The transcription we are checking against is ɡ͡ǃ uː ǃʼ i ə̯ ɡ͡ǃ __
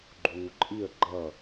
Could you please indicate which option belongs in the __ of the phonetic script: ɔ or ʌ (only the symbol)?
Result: ʌ